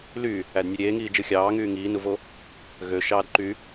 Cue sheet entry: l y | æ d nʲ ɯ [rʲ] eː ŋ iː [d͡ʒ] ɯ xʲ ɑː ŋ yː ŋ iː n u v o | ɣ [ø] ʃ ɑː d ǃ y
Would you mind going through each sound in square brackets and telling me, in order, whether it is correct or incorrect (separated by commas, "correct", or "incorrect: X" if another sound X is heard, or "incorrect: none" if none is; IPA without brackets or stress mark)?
incorrect: ɾʲ, correct, correct